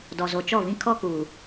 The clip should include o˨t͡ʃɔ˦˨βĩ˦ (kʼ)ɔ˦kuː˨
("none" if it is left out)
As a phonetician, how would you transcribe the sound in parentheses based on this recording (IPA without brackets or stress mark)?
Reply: kʰ